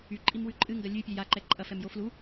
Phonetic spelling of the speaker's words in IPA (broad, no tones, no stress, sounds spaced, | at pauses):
y ǃʼ i m w ʉ ǃʼ ɨ ŋ ɡ ɐ lʲ ʉ pʲ ɛ j a ǃ ɛ ǃʼ ɐ f ɛ m j o f l u